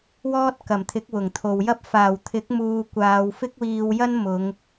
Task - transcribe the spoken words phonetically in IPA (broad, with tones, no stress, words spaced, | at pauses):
wɔː˥t̚kɐ˨˩mt̪ʰɪ˨˥k̚ wʊ˨˩ŋt̪ʰo˨wjɐ˥p̚ faː˨˩wt̪ʰɪ˨˥k̚muː˨ kʷaː˨˧wfɪ˥k̚wiː˧wjɐ˥n mʊ˨˧ŋ